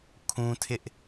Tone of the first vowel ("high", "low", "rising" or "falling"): high